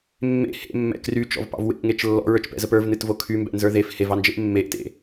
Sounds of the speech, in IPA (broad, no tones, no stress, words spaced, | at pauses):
mːḛ hḛmːɛ̰ kryt͡ʃɔ̰vpɑ̰v wḛʔŋet͡ʃ lːɔ̰ɹə˞t͡ʃpɛ̰zəp ə˞vnɨtvo kʰymbɛ̰nzə˞ ðef hevɑnd͡ʒeʔ mːeʔtḛ